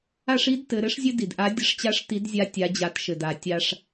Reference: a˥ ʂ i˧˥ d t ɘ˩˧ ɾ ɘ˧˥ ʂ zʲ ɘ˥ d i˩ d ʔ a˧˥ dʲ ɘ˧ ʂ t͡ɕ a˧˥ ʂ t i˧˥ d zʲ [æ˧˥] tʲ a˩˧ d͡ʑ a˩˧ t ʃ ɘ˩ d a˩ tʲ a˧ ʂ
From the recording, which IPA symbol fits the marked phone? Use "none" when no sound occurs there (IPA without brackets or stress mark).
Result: a˧˥